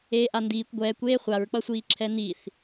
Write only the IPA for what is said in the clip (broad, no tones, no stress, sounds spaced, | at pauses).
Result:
eː ʔ a n d iː kʷ ɡʷ ɛː kʷ eː χʷ a ɹ k͡p ʌ sʷ iː ǁʰ ɛ n i θ